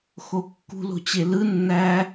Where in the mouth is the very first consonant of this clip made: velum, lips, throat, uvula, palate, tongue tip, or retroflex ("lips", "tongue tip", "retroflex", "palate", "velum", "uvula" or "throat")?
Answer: velum